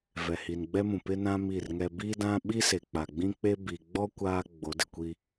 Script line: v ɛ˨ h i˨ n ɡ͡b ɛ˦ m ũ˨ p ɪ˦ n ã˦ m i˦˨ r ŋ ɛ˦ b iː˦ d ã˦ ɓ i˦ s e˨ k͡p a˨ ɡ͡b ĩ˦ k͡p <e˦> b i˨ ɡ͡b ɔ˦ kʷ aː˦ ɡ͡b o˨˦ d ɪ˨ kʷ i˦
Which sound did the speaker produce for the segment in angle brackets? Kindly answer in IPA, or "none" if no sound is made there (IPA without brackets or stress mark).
e˦